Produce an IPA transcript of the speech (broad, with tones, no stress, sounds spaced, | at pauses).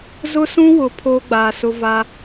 z ʊ˦ s ũ˦ w ʊ˨ pʰ oː˦ ɡ͡b aː˨ s ʊ˦ v a˦